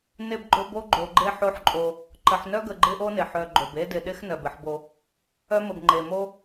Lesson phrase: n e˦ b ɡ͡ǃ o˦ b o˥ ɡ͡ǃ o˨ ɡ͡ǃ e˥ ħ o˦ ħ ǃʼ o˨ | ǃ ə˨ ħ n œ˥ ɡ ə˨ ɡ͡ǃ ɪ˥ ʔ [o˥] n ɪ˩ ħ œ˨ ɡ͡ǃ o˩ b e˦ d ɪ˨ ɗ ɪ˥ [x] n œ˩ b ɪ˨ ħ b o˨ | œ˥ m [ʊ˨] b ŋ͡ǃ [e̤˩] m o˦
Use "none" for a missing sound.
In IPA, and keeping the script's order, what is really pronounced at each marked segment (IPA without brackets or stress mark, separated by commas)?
o˥, x, ə˨, e˩